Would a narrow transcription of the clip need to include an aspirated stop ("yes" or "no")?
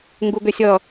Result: no